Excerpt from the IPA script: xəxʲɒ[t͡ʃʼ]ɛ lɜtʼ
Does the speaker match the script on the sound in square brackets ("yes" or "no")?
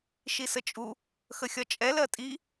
yes